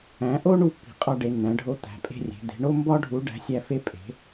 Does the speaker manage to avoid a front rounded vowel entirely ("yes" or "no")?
yes